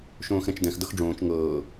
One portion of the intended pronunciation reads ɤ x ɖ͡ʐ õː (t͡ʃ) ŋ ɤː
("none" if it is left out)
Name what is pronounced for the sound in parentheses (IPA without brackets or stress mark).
t͡ʃ